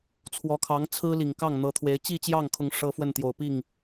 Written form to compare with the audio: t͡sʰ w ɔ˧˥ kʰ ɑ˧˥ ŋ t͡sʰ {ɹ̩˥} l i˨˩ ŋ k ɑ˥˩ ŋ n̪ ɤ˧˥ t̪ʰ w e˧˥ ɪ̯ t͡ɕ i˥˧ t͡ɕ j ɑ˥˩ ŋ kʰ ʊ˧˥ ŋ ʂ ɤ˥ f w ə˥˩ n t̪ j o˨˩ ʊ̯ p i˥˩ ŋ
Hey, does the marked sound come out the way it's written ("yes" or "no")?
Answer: yes